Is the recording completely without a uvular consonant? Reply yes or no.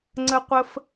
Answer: no